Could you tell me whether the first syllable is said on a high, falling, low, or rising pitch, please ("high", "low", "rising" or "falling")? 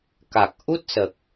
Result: low